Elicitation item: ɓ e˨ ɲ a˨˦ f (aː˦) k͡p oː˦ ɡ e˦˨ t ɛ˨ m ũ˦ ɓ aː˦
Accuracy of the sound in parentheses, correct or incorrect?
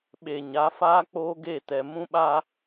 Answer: correct